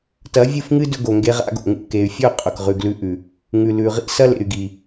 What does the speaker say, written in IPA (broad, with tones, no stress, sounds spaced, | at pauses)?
t ɐ˨˦ vʲ ɨ˦˨ f ŋ ɨ˦ d ɵ˧ ɡ o˨ ŋ ɡ e˧ ʁ a̰˧ ɡ o̰˨ ŋ ṵ˧ k e˨ y̯ fʲ ɵ˦˨ qʼ ɵ˨ k ʁ ʉ˨ ɡ l ʉ˧ ʔ ʉ˨ | ŋ ʉ˨ l ʉ˨ ʁ ḭ˦ s ɐ˦ l ḛ˨ y̯ ɡ i˨